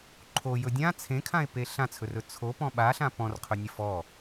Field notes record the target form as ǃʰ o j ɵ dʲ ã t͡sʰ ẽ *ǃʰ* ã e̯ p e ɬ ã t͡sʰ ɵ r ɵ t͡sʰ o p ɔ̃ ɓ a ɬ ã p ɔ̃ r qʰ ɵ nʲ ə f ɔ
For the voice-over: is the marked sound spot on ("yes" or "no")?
no